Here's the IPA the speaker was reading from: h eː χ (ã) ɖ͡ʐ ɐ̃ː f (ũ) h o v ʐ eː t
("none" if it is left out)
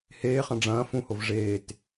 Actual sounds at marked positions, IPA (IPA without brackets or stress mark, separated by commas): ɐ̃, ũ